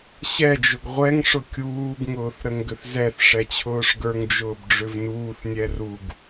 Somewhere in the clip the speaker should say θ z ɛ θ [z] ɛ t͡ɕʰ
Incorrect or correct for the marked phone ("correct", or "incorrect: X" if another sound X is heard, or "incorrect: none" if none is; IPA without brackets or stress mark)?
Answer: incorrect: ʂ